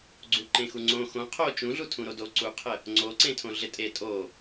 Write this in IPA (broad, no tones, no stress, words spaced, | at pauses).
ɡ͡ǀuǃẽxuŋ͡ǀõ xõ qʰo t͡ʃũɮutʰũ ɾodo ǀuqʰə | ŋ͡ǀoǀẽtʰõ ɮɪtʼe tʼo